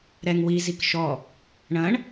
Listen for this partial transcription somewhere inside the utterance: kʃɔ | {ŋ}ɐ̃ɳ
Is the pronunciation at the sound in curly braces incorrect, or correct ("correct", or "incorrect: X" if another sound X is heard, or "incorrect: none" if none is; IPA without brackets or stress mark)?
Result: incorrect: ɳ